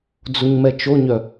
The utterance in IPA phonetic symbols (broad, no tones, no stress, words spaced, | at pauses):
d͡zuɲmɛt͡ʃoɲœ